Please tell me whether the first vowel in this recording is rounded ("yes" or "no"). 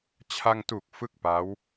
no